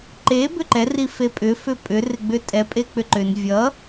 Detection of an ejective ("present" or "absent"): present